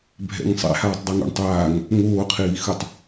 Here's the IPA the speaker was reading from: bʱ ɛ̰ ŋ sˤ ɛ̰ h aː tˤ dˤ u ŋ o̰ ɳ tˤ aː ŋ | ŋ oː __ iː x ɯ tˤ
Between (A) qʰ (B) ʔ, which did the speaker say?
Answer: A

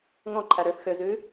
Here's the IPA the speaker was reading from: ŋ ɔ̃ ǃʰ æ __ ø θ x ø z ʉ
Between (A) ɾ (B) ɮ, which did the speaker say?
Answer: A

